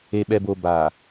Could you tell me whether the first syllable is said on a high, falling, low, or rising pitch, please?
low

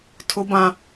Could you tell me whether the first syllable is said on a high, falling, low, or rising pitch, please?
low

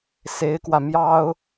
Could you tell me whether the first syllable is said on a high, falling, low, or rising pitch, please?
rising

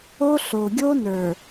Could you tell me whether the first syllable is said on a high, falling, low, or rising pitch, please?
high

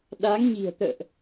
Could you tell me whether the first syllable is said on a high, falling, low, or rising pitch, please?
rising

